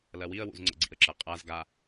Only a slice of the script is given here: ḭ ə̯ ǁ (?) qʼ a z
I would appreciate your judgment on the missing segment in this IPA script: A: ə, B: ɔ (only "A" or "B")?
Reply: A